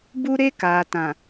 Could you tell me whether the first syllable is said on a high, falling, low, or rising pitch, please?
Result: high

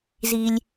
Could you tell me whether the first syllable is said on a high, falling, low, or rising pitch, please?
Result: low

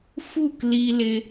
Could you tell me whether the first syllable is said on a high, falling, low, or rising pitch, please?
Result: falling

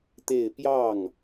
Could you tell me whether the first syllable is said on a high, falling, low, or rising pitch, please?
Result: falling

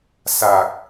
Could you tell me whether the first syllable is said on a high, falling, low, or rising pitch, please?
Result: low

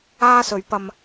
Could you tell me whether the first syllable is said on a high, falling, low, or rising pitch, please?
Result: high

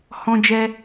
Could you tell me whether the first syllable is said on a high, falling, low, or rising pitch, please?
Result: high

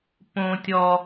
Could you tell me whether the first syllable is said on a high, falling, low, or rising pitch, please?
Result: low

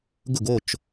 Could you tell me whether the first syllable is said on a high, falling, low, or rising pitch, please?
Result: falling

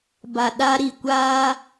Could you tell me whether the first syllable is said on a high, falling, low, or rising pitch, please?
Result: low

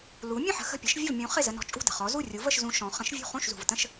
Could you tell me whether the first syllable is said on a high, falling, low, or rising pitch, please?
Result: rising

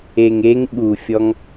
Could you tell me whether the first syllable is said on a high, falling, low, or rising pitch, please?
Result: low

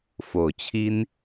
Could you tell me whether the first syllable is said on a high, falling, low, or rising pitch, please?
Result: low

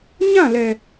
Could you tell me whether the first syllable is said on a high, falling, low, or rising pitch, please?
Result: falling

